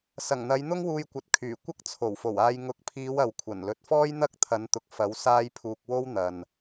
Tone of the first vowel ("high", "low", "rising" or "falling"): low